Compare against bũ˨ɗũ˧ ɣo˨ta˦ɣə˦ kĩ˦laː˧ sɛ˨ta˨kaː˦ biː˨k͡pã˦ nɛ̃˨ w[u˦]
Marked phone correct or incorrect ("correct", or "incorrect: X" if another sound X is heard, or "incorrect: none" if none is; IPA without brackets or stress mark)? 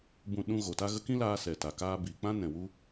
correct